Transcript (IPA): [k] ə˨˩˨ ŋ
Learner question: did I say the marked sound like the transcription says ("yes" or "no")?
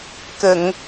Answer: yes